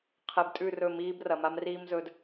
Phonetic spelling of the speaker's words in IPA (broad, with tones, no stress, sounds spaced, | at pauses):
qʰ e˨ b tʼ ʉ˦˨ r ɵ˦˨ m iː˦ b r ɐ˨ m a˦ m r iː˦ m z ɵ˨ d